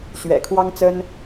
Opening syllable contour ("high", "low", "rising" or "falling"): low